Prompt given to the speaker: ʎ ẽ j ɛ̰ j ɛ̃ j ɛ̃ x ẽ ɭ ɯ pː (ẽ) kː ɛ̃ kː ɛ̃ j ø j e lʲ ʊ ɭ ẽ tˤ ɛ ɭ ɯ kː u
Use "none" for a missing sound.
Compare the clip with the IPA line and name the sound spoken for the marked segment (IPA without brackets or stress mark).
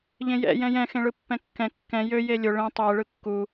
ɛ̃